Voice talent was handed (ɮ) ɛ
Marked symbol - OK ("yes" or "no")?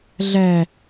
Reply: yes